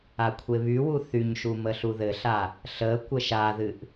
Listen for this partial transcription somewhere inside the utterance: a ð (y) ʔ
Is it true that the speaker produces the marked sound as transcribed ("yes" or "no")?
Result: no